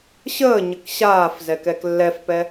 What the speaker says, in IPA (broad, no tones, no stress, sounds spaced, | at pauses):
ɕ əː ɲ ə k ɕ aː f z ɛ k ɛ k lː ɛ f p ɛ